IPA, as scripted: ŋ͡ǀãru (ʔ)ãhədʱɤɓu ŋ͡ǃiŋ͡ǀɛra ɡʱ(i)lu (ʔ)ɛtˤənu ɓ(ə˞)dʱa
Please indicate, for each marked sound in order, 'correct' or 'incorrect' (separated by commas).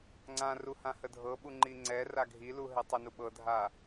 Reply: incorrect, correct, incorrect, incorrect